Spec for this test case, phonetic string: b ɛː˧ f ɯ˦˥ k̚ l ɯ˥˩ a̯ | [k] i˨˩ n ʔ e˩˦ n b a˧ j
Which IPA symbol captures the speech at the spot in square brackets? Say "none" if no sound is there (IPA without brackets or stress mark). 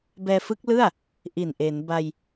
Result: ʔ